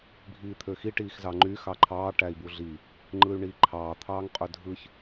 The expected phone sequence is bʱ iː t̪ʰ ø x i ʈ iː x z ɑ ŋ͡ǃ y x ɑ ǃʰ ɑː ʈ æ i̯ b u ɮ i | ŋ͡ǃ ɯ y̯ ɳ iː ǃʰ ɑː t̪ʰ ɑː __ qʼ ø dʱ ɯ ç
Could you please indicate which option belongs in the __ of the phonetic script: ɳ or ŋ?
ŋ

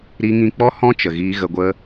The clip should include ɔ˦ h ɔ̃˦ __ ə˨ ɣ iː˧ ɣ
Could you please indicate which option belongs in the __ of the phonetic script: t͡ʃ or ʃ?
t͡ʃ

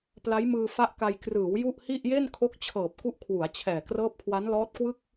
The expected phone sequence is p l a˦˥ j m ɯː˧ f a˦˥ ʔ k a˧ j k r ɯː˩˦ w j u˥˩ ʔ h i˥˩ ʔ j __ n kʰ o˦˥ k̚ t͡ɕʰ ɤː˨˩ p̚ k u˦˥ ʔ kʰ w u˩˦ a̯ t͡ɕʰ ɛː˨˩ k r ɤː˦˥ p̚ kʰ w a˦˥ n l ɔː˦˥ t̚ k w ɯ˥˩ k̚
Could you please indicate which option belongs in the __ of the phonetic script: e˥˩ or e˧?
e˥˩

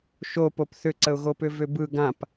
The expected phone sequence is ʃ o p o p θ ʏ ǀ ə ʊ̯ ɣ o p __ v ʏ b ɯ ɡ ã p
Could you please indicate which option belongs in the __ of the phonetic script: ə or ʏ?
ʏ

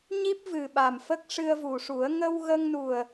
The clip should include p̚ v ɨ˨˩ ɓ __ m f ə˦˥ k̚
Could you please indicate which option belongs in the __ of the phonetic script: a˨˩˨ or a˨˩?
a˨˩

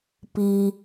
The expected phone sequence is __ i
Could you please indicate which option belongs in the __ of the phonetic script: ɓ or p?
p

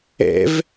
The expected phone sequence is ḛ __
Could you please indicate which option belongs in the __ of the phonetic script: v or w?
v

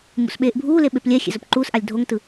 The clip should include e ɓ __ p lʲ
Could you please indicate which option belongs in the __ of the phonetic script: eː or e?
e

